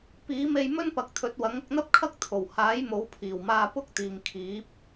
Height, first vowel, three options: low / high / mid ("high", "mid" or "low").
high